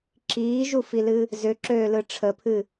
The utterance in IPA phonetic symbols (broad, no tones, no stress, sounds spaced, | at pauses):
ǁ iː ʒ u f i l ɨ | z ʏ ǁ øː l ɯ ʈ͡ʂʰ ə pʰ ɨ